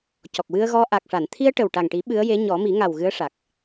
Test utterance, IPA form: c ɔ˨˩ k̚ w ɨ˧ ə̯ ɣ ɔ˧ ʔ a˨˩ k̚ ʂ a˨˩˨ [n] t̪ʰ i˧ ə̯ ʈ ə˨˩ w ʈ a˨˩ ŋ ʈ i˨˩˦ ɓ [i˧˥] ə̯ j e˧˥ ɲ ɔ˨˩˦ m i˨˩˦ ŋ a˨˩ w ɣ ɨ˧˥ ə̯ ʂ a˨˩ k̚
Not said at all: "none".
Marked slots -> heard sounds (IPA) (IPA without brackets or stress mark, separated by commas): n, ɨ˧˥